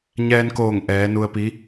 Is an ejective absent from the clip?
yes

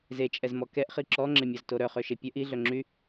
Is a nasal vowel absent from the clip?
yes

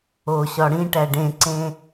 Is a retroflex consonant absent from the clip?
no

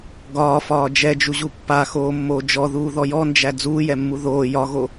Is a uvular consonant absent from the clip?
yes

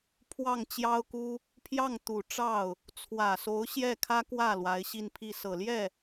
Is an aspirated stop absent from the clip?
no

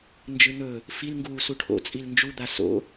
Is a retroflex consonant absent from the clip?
no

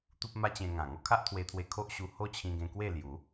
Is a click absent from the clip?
yes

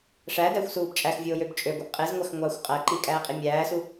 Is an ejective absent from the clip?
no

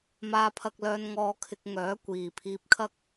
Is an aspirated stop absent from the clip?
no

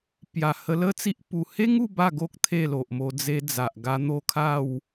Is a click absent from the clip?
yes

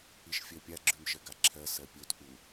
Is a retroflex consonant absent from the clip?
yes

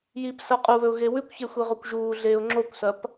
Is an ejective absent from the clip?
no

